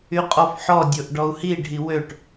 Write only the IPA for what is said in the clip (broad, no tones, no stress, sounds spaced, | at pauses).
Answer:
y qʼ ɔ f ħ ɔ dʲ o ʔ ɖ ɔ u̯ h i ɖʱ i w ø ʈ